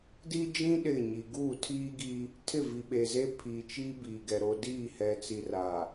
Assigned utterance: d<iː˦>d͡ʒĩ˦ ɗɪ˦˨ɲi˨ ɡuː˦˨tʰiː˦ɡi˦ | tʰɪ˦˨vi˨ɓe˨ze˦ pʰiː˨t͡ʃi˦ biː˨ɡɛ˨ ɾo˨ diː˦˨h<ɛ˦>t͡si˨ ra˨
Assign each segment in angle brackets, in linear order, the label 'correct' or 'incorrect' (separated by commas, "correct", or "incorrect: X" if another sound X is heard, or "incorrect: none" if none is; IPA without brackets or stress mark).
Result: incorrect: i˦, incorrect: ɛ˨